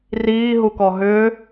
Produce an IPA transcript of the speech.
r iː ɦ u k ɔ ɦ ʏː

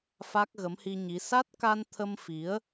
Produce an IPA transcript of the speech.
f a˦˥ k̚ ɣ ə˨˦ m h i˧ ɲ i˨˦ s a˦˥ t̚ k a˧ n t̪ʰ ə˧ m f i˨˦ ə̯

